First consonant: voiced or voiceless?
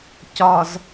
voiceless